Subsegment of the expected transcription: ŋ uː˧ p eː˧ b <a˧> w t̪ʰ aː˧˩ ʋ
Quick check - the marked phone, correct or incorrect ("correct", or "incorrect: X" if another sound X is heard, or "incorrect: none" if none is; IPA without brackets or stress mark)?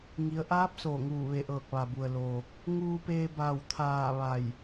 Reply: incorrect: a˧˩